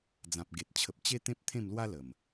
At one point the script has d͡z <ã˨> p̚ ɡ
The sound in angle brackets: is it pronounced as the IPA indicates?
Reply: yes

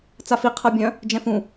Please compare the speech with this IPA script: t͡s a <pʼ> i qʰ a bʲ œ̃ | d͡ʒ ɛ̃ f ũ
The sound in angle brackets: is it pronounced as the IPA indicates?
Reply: no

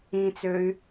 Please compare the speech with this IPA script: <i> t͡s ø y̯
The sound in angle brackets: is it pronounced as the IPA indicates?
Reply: no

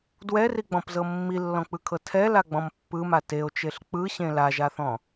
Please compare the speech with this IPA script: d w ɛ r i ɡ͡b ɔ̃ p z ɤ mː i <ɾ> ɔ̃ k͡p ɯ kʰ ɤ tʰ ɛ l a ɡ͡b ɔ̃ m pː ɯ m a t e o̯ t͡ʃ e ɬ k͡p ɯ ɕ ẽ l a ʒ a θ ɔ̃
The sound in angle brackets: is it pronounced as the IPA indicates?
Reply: no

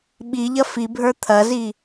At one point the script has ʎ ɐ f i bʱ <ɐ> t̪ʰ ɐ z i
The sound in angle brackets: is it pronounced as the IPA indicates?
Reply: no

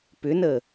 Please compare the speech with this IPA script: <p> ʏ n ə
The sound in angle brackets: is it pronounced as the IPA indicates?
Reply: yes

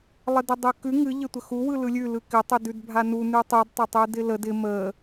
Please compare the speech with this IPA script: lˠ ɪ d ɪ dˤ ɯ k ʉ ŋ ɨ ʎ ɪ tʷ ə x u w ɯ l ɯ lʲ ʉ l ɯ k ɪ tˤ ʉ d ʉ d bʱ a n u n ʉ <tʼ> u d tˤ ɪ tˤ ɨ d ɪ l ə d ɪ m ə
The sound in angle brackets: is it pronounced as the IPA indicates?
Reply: no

